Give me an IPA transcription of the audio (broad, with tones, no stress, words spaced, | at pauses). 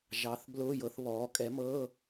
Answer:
ʒɑ˩˥θ blʊː˧˥˧jɤ˩˥θβɔː˩˥ kʼɛ˩˥mɤ˧˥˧